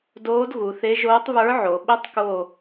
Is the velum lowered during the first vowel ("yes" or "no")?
no